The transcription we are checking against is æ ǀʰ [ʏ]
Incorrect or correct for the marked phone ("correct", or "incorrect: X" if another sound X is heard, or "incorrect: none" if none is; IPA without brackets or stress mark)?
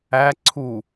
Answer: incorrect: u